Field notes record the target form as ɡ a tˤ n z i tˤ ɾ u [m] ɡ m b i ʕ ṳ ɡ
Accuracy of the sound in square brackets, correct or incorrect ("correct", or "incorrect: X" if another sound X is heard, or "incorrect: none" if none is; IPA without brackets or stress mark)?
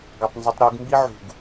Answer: incorrect: none